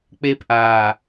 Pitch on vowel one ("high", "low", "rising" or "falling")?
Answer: high